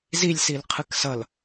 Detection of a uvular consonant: present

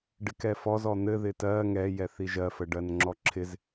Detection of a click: present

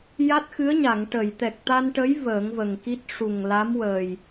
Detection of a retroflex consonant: present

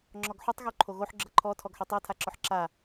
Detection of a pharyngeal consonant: present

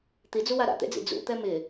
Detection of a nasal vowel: absent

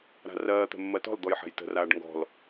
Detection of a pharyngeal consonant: present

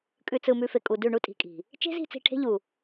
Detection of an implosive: absent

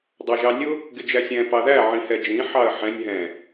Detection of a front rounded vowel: absent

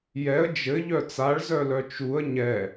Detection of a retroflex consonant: present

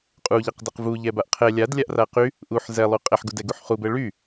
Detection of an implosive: absent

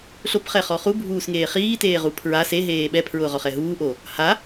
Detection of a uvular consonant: present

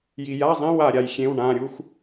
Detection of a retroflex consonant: present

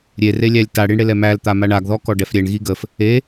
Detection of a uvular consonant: absent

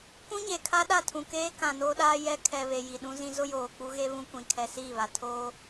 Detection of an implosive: present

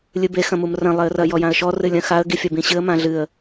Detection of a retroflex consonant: absent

